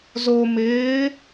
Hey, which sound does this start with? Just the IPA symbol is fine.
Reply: z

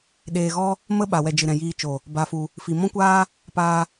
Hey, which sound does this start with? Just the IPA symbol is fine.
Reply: ɗ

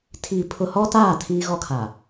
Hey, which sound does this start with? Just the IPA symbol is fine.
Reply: tʰ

